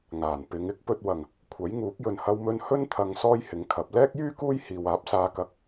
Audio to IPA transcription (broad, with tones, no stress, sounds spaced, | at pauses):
ŋ aː˨˩ n p ɪ˨˧ ŋ ɪ˥ k̚ p ɵ˧ t̚ w ɐ˨˩ ŋ | kʷʰ ɐ˨˥ j ŋ uː˨˥ k̚ j ɵ˨ n h ɐ˧ w m ɵ˧ n h ɵ˥ n t̪ʰ ɐ˧ ŋ s ɔː˥ j h ɪ˨˥ ŋ kʰ ɐ˨˥ p̚ l ɛː˥ k̚ j yː˥ k uː˥ j h iː˨ w aː˨˥ p̚ s aː˨˧ k ɐ˨˥ k̚